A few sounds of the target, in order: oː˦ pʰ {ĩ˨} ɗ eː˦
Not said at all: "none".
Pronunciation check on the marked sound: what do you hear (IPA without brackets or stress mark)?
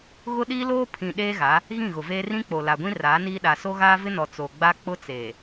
ĩ˨